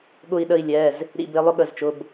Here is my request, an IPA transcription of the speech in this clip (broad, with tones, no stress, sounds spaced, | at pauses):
ɠ ʊ˧˩ i̯ ɗ ə˧˩ i̯ lʲ ɛ˩˧˩ z | ɾ ḭ˧˩ b ɪ˨˦ lˠ ʊ˦ ɠ ə˩˧˩ z t͡ʃ ʊ˩˧˩ b